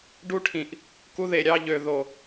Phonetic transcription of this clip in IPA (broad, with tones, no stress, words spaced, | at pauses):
ɖu˦ʈʰĩ˨ʔ | ku˦ðe˨ɾʲɑ˦ʎø˨ ðo˨